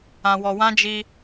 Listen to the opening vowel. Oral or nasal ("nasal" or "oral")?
nasal